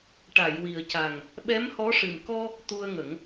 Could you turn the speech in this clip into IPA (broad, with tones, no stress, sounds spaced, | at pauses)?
ʈ a˨˩˨ j w i˨˩ ə̯ c a˨˩ ŋ | ɓ ɛ˧˥ m h ɔ˧˥ ʂ ɨ˨˩ m k ɔ˧ | t̪ u˧ ə̯ ŋ ə˨˩˦ ŋ